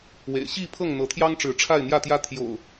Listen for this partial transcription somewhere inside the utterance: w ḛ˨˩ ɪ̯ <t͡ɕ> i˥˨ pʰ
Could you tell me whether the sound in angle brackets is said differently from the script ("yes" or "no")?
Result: yes